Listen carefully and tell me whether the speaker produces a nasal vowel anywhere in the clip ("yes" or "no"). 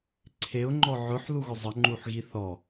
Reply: no